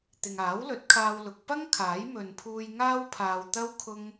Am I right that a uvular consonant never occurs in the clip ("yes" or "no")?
yes